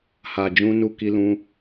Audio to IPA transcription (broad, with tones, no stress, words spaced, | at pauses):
ha˨d͡ʒũ˧ nu˧ki˧lũ˧